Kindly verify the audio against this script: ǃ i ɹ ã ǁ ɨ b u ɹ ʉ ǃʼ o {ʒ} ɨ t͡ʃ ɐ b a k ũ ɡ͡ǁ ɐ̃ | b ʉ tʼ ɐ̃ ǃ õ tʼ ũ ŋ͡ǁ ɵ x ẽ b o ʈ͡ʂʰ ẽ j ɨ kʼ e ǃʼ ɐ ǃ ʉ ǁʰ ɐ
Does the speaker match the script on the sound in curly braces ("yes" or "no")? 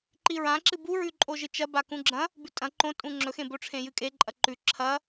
yes